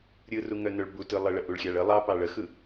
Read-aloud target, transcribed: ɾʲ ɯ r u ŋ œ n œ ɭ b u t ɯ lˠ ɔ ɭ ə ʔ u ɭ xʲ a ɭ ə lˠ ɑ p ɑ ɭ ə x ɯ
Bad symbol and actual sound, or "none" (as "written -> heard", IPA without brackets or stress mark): ɔ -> ə